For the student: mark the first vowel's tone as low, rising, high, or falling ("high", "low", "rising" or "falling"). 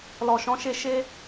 low